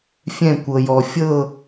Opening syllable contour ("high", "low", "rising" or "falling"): falling